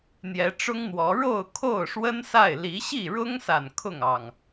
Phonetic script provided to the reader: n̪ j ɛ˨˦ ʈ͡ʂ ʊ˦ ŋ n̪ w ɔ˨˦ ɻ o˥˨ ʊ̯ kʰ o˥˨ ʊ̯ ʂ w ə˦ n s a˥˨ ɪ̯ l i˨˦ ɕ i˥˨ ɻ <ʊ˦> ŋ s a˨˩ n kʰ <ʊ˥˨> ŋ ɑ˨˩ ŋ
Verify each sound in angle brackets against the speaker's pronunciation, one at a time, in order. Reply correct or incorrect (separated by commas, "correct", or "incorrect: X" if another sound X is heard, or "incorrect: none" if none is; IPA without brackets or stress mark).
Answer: correct, correct